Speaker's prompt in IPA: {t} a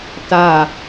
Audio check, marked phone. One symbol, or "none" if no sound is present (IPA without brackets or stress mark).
t